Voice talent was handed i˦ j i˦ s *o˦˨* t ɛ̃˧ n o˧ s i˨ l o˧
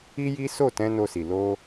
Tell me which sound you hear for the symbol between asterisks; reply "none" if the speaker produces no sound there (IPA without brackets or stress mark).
o˦˨